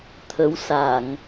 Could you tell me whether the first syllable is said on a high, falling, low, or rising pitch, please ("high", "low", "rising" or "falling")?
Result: rising